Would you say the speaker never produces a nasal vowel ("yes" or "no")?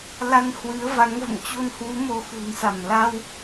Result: yes